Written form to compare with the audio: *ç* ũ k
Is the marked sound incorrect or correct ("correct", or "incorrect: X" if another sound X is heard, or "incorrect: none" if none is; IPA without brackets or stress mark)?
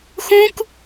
incorrect: x